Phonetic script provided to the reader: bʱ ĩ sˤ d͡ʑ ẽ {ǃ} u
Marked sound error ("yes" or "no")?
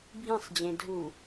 yes